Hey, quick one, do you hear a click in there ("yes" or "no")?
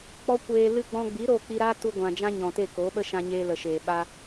no